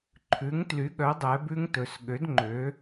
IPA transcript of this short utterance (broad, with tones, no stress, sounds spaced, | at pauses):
ǃʰ ʉ˨˦ ŋ t l y˨˦ ɠ œ˨˦ dˤ ɛ˨˦ b ʉ˦˥ ŋ t ɵ˨˦ s ɠ ø˨˦ d ŋ͡ǃ ø˨˦